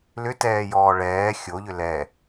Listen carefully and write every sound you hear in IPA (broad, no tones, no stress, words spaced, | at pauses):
lʏtɛːjɔː ɭɛː xʲoʎʏ lɛ